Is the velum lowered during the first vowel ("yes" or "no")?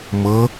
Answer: no